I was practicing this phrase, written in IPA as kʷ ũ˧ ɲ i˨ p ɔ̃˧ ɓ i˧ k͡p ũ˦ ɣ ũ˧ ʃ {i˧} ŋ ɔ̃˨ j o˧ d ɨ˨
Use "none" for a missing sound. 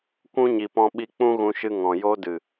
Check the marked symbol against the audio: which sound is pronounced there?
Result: ɨ˧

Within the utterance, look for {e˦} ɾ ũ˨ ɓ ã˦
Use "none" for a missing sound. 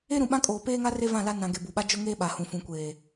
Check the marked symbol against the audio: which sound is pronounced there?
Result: e˦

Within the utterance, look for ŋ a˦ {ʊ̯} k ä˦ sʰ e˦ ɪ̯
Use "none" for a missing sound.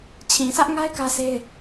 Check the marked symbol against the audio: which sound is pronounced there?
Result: ɪ̯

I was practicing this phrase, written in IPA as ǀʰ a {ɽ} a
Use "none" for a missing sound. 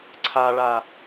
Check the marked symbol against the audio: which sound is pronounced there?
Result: ɭ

